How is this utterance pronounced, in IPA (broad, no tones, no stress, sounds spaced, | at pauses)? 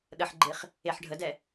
ɗ ə ħ ɡ͡ǃ e χ | e ħ ɖʱ ə d ɛ